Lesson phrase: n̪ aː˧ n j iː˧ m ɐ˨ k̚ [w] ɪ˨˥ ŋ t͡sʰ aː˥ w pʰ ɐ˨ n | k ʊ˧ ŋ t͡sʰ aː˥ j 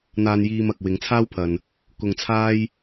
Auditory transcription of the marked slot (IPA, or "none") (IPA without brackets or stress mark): w